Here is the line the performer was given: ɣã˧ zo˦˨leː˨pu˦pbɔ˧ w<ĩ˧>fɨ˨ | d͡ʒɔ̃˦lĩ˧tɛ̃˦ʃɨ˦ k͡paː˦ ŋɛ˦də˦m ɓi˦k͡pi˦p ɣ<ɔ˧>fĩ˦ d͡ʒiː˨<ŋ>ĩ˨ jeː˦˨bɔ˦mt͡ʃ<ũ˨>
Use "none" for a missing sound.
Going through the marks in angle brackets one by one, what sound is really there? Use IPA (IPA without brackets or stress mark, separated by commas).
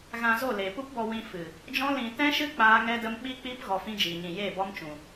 ĩ˧, ɔ˧, ɲ, ũ˨